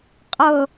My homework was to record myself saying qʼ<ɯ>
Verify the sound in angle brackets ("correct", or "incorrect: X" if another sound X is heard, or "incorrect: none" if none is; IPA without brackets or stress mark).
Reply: incorrect: ɤ